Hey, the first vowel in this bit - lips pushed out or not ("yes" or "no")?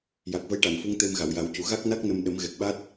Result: no